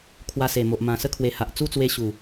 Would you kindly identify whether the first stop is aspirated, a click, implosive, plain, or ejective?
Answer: aspirated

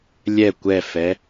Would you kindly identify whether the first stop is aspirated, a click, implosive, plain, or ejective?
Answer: plain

